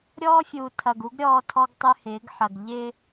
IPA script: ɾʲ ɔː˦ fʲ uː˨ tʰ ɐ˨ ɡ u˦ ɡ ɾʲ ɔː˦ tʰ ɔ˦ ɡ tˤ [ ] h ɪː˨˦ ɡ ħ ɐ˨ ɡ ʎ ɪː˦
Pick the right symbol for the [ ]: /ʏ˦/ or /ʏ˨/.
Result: ʏ˦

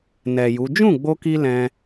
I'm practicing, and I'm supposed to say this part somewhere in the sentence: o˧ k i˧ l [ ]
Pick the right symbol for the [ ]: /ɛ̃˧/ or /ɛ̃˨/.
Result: ɛ̃˧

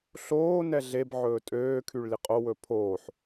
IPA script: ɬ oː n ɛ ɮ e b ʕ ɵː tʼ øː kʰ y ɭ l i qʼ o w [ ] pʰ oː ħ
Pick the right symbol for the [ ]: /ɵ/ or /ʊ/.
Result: ɵ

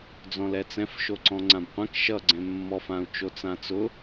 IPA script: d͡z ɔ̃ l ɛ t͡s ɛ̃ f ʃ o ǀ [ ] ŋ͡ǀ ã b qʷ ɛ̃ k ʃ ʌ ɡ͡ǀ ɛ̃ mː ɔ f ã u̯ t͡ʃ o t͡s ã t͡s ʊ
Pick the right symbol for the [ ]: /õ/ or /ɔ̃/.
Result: ɔ̃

